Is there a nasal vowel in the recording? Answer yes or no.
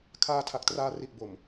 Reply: no